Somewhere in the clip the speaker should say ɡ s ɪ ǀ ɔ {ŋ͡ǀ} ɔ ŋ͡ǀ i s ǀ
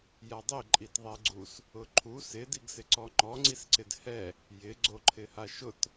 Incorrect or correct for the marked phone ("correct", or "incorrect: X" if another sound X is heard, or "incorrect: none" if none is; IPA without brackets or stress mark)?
incorrect: ŋ͡ǃ